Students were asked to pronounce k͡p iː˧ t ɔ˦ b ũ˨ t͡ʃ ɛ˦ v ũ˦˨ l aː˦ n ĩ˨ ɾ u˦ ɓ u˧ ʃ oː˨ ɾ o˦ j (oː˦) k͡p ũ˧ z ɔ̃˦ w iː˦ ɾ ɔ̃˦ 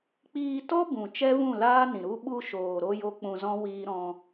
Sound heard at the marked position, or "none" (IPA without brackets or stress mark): o˦